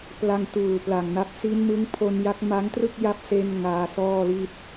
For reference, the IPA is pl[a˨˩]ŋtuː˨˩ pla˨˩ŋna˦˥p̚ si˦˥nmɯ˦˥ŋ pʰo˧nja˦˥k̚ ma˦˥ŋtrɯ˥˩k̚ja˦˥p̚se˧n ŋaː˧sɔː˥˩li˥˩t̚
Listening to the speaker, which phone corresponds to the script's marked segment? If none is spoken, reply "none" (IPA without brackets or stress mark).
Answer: a˧